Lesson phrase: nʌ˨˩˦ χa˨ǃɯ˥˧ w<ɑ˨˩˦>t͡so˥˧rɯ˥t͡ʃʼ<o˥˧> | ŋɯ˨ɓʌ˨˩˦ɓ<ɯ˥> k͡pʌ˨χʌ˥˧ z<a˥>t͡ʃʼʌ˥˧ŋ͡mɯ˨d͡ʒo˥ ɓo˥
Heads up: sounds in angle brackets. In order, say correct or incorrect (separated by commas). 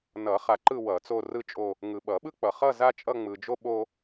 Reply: incorrect, correct, correct, correct